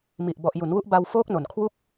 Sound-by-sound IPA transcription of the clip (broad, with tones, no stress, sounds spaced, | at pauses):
m i˨˩ ʔ b ɔ˨˩ ʔ j u˩˦ n w u˦˥ ʔ b a˧ w f oː˦˥ k̚ n o˨˩ n kʰ w u˥˩ k̚